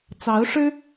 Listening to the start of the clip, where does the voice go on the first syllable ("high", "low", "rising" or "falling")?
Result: rising